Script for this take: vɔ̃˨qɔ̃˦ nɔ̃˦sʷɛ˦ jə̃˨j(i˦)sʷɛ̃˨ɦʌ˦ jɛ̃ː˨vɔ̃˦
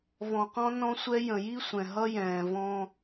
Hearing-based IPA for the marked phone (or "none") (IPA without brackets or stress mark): i˦